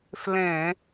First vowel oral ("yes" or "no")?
no